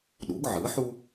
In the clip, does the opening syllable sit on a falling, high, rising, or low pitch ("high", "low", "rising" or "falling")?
rising